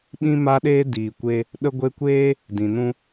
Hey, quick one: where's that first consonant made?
lips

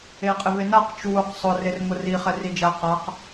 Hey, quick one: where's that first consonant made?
uvula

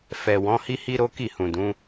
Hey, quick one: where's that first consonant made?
lips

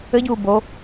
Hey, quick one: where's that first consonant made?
palate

